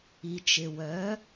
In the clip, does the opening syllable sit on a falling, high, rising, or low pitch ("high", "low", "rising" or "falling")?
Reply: low